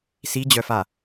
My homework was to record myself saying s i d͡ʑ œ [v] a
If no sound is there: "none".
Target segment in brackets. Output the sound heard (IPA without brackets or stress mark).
f